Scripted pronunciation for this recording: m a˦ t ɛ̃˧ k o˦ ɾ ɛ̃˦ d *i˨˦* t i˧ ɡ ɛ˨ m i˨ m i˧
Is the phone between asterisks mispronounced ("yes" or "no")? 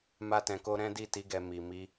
yes